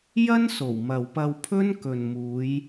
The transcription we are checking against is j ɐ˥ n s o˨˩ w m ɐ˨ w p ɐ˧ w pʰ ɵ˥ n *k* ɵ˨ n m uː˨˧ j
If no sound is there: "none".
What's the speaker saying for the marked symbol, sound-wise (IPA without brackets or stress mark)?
k